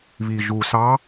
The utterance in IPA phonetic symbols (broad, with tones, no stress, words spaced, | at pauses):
βi˨˩ ʒu˨˩sɑ˧˥